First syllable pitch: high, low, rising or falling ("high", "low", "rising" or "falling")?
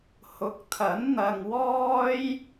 rising